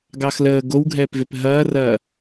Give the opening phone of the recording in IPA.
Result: ɡ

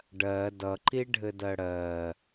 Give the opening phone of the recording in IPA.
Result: ɖ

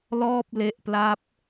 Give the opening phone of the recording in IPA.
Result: l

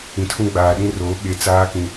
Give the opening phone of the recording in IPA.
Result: ĩ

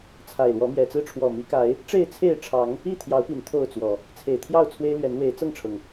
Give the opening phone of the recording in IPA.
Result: t͡sʰ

